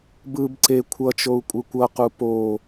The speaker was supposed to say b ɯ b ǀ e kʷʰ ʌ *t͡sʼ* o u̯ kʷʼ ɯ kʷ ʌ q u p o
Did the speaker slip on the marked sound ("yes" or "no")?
yes